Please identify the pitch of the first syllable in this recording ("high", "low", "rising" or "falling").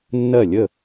falling